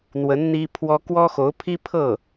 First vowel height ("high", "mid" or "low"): mid